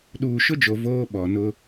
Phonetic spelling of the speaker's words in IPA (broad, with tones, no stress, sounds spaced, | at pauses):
ɗ uː˨ ʃ ʊ˦ d͡ʒ o˨ v oː˦ ɓ ɔ˨ n ʊ˦